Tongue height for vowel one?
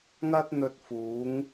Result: low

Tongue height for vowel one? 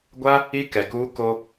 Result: low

